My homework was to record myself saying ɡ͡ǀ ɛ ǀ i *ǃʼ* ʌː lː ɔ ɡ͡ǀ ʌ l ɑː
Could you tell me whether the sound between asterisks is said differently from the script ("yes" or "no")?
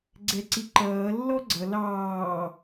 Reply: yes